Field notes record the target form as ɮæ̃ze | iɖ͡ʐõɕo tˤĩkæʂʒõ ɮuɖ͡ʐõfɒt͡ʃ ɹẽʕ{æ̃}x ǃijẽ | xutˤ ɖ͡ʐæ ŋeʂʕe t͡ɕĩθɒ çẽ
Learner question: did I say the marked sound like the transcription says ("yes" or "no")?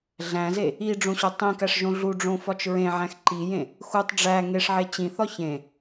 yes